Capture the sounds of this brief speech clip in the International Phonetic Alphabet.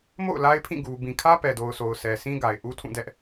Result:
m o̰˦˨ ʊ̯ l a˦ ɪ̯ pʰ ĩ˦˨ ɡ u˨ b ĩ˨ kʰ ä˦ p ɛ˨ d o˨ ʊ̯ sʰ o˨ ʊ̯ sʰ ɛ˨ s ĩ˦ ɡ a˨ ɪ̯ ʔ u˦ tʰ ũ˦˨ d ɛ˦ ʔ

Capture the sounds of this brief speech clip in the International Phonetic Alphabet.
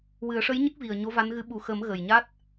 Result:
w ɨ˨˩˦ ə̯ ʂ ə˧˥ j ɲ ə˦˥ k̚ v i˨˩ ə̯ ɲ o˧˥ v a˧˥ n ɣ ɨ˧˥ ɓ u˨˩ x əː˨˩˦ m ɣ ə˨˩ j ɲ a˦˥ t̚

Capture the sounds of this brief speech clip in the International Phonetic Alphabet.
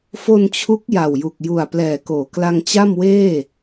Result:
f o˧ n t͡ɕʰ u˦˥ k̚ j a˨˩ w j u˨˩ k̚ j u˨˩ a̯ p l ɛː˨˩ k oː˩˦ k l a˧ ŋ t͡ɕ a˥˩ m w eː˥˩

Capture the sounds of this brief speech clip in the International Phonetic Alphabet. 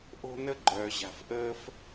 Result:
ʔ o̤˥ n ə˥ ɡ͡ǃ œː˩ ʑ a̤˩ f ʔ əː˥ f

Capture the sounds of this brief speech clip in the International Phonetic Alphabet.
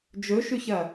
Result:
d͡ʒ ɵ ʃ ʉ ç ɐ

